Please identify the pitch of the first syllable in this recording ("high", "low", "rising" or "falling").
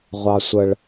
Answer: low